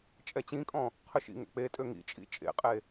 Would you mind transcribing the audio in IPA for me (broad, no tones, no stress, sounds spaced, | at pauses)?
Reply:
t͡ʃʼ ɛ t͡ɕ ĩ kʼ ɔ̃ | qʰ ø ʃ ḭ ŋ ɛ̰ k͡p e tʼ ø ŋ ḭ t͡ʃʼ ḭ t͡ʃʼ ḛ qʼ e